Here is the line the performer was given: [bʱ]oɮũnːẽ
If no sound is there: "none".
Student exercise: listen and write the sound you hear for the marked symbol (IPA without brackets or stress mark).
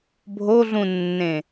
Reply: bʱ